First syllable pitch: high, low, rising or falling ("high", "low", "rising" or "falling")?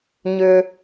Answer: high